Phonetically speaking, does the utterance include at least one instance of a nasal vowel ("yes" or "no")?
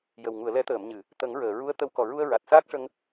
no